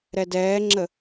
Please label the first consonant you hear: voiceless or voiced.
voiced